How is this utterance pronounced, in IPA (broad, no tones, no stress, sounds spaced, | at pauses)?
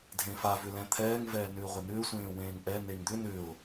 dʱ ẽ f a v ʏ l ɛ̃ t̪ʰ ɛː ŋ v ɛː n ʏː ʁʷ e n ʏː sʷ ẽː w ẽː ŋ ʔ ɛ n e ŋ d̪ ʏ n ʏ ʊ̯